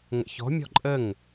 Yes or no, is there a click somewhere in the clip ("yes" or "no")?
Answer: yes